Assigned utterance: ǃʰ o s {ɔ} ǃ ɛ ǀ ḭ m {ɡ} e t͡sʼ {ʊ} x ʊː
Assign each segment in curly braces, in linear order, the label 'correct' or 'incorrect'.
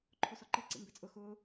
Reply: correct, incorrect, correct

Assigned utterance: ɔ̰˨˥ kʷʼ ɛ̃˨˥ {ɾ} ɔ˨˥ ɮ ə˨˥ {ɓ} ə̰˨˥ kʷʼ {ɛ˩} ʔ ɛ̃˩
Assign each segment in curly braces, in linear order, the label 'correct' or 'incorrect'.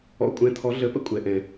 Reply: incorrect, incorrect, incorrect

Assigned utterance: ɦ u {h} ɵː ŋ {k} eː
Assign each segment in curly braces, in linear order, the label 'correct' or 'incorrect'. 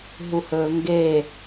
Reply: correct, incorrect

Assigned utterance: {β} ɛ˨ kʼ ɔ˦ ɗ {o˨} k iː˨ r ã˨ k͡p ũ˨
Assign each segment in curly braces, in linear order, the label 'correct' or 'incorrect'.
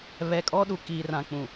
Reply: correct, incorrect

